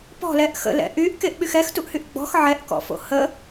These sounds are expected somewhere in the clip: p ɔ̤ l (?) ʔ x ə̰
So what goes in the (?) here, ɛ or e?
ɛ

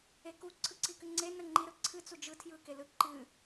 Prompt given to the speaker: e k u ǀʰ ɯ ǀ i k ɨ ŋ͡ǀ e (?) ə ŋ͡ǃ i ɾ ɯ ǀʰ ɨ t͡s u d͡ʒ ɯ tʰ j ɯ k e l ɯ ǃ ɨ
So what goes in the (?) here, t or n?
n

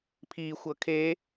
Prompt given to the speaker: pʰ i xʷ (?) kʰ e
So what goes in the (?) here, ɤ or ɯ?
ɤ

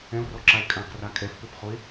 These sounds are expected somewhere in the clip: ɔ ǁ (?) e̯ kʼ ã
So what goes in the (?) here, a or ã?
a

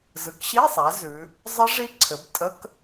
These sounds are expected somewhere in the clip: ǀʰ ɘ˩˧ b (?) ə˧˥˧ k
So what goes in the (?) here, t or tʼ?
tʼ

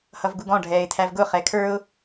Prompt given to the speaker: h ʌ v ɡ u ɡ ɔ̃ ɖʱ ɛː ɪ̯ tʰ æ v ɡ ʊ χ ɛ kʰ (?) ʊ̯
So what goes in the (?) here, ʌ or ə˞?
ə˞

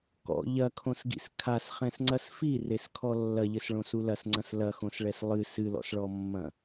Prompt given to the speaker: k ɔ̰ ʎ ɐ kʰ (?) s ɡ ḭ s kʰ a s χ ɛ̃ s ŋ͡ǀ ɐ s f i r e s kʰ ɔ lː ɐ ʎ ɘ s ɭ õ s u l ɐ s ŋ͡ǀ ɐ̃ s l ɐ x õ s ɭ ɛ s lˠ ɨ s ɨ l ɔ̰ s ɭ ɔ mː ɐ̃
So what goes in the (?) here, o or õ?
õ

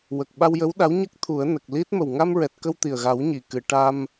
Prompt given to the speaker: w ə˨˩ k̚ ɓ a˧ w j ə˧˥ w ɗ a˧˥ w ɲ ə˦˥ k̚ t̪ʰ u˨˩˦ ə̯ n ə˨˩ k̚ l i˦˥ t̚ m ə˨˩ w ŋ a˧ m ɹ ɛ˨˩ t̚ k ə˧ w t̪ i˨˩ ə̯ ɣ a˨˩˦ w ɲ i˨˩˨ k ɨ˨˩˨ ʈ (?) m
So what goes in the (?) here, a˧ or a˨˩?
a˧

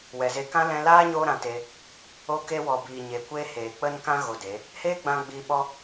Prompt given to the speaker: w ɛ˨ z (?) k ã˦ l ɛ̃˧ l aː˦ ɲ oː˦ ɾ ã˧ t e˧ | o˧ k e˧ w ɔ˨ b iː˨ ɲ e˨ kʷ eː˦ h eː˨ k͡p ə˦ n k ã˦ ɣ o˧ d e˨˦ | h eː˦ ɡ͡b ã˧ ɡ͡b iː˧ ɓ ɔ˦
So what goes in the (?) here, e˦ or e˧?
e˧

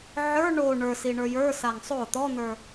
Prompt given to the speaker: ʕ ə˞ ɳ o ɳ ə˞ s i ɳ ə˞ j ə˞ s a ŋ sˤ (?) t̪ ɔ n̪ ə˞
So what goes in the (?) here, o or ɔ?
o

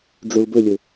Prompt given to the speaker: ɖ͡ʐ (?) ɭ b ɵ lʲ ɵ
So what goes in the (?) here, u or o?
o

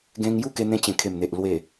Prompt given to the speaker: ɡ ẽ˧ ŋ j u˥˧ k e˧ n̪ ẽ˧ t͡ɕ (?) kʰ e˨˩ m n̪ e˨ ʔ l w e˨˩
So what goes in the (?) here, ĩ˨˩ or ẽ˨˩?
ẽ˨˩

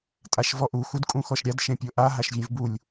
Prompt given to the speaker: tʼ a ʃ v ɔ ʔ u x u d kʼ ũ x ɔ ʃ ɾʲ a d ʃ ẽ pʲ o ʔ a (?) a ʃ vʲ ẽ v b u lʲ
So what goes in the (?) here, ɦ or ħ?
ɦ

